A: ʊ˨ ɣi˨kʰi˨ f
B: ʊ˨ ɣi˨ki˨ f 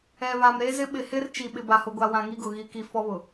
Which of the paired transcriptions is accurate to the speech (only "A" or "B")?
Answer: B